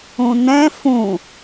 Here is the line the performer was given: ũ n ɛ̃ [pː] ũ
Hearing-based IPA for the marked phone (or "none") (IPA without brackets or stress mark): f